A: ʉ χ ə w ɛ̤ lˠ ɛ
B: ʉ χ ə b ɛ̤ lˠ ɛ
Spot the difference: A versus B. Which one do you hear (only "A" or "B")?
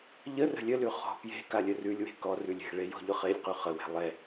A